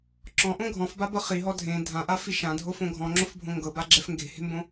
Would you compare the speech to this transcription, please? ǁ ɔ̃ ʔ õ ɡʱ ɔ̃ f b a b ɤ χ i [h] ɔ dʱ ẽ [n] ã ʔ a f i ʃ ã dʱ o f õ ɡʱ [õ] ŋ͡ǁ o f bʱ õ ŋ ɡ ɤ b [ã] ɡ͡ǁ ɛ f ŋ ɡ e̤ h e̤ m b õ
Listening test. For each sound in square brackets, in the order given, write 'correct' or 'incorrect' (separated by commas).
incorrect, incorrect, incorrect, incorrect